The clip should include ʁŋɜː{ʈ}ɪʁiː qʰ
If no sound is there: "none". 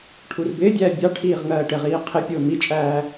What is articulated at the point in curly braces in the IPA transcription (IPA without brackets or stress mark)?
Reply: ʈ